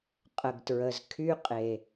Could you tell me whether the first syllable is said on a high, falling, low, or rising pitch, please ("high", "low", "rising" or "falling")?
low